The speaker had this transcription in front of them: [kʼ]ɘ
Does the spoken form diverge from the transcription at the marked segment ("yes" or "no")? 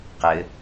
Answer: yes